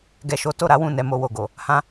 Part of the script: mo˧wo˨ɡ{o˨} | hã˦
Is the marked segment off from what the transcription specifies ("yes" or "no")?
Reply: no